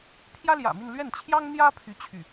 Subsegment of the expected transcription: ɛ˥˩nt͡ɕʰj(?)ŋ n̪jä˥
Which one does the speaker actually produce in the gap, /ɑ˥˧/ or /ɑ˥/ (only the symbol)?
ɑ˥